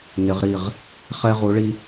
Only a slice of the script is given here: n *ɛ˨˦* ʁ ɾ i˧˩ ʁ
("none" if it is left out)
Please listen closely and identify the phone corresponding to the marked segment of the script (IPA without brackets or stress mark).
ɪ˨˦